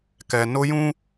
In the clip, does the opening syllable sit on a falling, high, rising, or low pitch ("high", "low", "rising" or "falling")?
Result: low